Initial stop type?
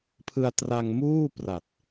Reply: aspirated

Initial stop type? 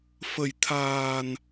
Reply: aspirated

